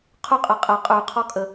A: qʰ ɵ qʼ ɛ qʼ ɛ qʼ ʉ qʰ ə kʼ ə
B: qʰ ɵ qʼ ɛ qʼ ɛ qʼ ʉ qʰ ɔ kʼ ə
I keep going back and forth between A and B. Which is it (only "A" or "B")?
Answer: B